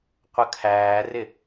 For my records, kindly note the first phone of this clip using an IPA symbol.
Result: qʷ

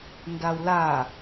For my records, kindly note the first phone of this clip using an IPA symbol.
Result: n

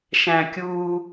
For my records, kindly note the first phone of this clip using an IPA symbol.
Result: ʃ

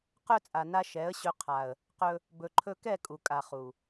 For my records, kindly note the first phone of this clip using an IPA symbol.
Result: q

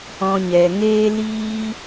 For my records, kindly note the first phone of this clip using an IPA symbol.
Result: ɔ̃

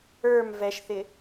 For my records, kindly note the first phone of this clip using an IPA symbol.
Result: ə˞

